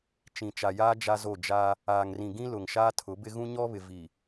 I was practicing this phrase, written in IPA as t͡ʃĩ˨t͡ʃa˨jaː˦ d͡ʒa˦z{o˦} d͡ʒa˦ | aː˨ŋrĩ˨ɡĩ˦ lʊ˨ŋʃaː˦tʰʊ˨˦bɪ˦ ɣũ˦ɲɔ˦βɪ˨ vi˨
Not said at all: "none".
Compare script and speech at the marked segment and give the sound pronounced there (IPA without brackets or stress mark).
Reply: o˦˨